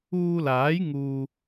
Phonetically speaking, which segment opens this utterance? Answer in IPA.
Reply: uː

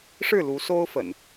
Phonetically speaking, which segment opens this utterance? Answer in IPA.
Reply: ʂ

